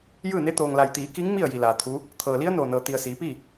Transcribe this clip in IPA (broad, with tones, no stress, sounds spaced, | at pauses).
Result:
j ɯː˥˨ n e˧˥ t̪ oː˩ ŋ l a˩ j t̪ iː˩˧ k i˧˥ ŋ m i˥˨ ə̯ j i˩ l aː˩ t̪ʰ u˧˥ | t̪ʰ ɤː˩ l i˧˥ ə̯ n oː˧˩ n ɤː˩ t̪ i˩ ə̯ s iː˩˧ p i˥˨